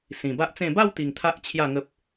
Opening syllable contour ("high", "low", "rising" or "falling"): low